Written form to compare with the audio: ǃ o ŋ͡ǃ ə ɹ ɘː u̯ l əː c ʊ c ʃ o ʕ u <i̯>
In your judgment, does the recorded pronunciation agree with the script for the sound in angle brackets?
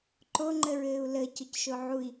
yes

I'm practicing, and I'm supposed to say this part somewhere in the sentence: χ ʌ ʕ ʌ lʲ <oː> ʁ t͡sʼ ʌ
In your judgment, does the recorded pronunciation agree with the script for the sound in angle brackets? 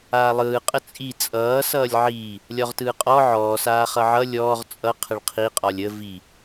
no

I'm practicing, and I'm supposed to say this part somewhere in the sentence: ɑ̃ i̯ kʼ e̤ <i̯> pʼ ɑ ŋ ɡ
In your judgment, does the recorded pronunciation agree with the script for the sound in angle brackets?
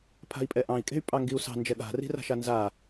no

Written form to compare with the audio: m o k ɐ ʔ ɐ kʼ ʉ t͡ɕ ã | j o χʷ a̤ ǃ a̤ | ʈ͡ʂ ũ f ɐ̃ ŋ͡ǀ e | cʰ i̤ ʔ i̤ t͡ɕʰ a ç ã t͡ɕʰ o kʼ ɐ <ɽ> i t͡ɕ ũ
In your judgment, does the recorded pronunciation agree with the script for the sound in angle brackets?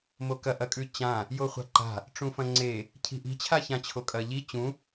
no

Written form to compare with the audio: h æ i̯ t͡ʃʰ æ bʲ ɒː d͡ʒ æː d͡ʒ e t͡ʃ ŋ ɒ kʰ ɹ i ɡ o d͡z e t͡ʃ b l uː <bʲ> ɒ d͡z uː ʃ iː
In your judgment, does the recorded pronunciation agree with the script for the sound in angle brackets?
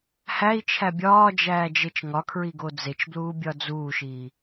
yes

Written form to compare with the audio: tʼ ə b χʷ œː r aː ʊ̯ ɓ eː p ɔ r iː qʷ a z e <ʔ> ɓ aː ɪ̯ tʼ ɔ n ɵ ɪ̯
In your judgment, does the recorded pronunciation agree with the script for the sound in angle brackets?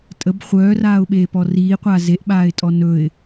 yes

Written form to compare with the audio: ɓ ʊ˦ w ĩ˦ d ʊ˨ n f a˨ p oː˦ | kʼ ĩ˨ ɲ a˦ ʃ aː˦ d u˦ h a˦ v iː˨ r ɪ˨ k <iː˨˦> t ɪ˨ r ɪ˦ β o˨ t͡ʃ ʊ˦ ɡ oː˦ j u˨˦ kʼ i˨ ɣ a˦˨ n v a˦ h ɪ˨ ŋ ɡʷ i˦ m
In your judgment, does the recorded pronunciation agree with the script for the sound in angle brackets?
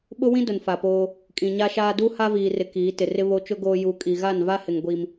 yes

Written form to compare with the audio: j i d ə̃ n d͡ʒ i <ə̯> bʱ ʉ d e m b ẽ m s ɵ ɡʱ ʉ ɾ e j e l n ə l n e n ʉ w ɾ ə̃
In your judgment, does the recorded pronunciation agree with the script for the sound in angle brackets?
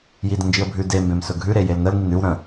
yes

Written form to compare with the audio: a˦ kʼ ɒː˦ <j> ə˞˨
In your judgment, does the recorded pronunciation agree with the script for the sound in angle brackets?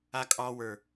no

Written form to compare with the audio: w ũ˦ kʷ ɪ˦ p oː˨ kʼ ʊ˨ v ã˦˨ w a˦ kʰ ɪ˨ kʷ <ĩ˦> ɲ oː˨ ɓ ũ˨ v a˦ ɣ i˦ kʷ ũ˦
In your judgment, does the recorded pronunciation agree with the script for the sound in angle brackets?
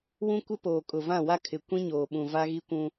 yes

